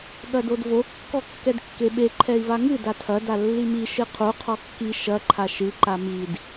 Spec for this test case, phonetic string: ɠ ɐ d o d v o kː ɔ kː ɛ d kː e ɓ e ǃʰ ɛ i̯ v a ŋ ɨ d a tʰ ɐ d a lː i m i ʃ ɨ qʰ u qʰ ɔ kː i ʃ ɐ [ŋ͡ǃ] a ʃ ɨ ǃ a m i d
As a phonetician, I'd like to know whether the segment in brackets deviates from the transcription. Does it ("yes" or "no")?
yes